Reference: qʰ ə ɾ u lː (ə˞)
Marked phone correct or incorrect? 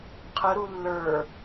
correct